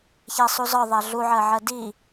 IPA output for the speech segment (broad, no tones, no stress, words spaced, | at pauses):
çæsˤuzɒ ðˤæɮuʕɜʕɜ di